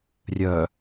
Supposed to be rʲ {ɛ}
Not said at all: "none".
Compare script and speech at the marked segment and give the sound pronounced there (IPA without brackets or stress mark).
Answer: œ